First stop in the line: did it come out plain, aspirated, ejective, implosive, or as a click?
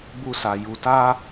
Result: plain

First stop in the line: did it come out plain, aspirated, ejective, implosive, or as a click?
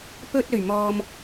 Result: plain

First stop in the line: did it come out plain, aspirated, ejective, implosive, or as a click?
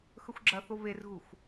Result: click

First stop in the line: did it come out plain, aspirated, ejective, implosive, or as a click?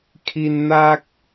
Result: aspirated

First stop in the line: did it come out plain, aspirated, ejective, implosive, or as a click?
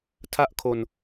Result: aspirated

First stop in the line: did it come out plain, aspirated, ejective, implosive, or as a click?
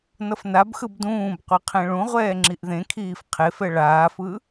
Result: plain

